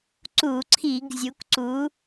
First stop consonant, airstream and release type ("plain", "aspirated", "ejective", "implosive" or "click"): click